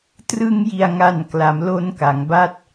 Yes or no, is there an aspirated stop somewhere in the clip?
no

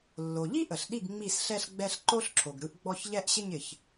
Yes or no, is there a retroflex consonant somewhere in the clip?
no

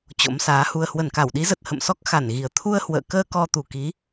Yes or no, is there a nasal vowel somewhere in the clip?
no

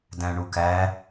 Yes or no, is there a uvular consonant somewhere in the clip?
no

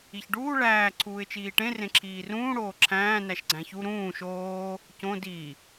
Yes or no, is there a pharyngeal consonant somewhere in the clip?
no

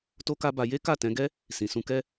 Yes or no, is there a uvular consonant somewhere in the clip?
no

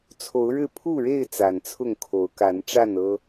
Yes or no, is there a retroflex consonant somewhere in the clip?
yes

